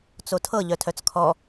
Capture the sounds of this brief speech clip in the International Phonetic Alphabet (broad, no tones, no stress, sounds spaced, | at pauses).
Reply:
t͡s o tʰ ɤ ʎ œ tʰ œ t͡s kʰ ɔ